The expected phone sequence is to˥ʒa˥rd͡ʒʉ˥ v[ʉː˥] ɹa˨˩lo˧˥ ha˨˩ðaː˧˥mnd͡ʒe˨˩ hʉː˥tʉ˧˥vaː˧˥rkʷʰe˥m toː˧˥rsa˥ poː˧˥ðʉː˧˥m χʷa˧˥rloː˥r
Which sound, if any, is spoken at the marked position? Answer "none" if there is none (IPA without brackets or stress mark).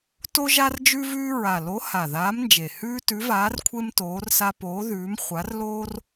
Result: ʉː˥